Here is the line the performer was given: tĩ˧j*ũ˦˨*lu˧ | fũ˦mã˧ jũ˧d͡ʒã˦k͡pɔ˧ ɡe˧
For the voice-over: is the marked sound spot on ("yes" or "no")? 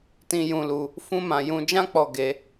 no